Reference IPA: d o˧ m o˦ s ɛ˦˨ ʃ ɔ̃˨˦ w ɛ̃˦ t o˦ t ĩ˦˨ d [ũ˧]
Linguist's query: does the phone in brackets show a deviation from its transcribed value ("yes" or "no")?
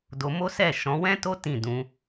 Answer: yes